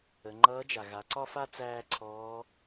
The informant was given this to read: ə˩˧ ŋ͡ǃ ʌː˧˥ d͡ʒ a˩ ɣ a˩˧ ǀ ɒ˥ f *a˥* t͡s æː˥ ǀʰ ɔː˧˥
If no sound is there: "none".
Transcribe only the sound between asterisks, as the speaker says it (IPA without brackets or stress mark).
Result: a˥